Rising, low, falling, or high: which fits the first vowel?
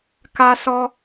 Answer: high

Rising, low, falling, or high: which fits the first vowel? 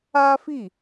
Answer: high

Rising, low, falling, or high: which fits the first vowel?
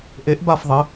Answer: rising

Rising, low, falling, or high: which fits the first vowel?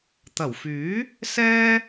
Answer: low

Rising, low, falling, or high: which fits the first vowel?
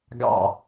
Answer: falling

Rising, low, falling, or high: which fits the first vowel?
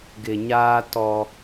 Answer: low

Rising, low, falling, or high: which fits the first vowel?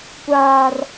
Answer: high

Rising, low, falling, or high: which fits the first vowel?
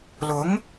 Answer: rising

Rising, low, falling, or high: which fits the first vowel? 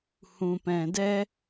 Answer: low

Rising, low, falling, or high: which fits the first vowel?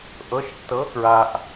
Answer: rising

